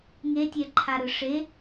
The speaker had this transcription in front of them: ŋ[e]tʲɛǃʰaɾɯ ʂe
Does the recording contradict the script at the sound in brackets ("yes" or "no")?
no